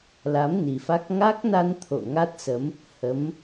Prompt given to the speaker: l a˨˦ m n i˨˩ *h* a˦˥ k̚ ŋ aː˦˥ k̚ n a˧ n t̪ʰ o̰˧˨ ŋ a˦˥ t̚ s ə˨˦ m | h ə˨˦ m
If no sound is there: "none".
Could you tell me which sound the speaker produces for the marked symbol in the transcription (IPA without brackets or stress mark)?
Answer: f